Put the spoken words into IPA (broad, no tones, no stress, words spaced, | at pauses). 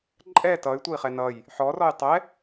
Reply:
ǃʼɛ tʌy̯tʷʌi̯χɛ nʌj | ħɔrɔj tˤɛ